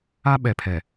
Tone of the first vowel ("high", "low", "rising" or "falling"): high